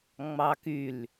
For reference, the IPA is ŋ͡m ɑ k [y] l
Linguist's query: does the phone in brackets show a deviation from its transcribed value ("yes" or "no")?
no